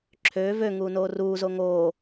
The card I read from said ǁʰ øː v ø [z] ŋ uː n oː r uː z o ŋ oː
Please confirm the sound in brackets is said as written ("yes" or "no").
no